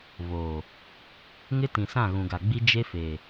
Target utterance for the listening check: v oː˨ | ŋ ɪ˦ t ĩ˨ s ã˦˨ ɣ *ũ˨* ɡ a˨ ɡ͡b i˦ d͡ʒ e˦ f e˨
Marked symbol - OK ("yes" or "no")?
yes